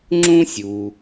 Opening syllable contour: high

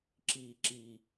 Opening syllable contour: low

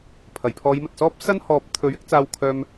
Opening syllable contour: low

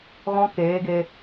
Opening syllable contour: high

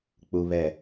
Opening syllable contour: low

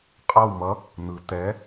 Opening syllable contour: falling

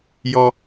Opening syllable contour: high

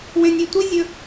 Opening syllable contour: high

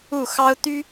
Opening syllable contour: falling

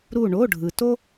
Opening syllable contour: falling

